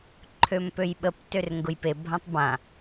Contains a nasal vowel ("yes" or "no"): yes